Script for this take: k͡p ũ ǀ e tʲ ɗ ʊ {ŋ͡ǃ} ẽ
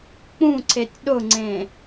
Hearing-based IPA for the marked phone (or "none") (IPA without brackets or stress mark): ŋ͡ǀ